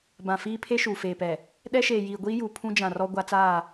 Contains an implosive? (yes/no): yes